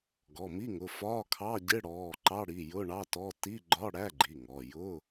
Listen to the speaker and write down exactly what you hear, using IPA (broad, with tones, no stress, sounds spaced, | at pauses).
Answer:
ɡ ɔ˩˧˩ m i˧˥˧ ŋ ʊ˩˧˩ f ɒ˧˥˧ kʰ ɑ˧˥˧ ɟ ɪ˧˥˧ ɽ ɔː˩˧˩ ǃ ɑ˧˥˧ ɽ i˩˧˩ j ʊ˧˥˧ ɳ ɑ˧˥˧ t ɔ˧˥˧ t i˧˥˧ ɡ͡ǃ ɒ˧˥˧ ɽ æ˧˥˧ ɡ͡ǃ i˩˧˩ ŋ ɔ˩˧˩ j ʊ˧˥˧